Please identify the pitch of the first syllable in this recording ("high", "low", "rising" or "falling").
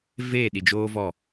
falling